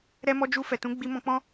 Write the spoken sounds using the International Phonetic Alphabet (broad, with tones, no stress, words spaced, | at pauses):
ɾɛ˦mɔ˦ d͡ʒu˧ fɛ˨tũ˨˦ ɡ͡bi˧mɔ̃˧k͡pɔ̃˦